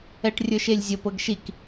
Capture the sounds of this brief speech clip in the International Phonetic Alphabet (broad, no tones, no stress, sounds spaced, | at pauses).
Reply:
ɛ ʈ rʲ ə˞ ʃ e lʲ zʲ ə p ɤ ɡ ʃ i k